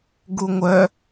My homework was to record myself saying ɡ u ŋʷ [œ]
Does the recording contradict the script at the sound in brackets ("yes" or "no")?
no